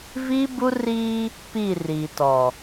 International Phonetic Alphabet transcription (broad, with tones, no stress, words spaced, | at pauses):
viː˦bu˦riː˦ | pi˦˨ riː˨tɔ˨